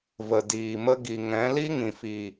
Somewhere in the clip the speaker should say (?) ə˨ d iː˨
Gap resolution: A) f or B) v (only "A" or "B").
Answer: B